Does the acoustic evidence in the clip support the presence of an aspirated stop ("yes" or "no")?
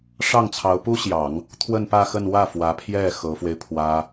yes